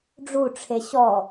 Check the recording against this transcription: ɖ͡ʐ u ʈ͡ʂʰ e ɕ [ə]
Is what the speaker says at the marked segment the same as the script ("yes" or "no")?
no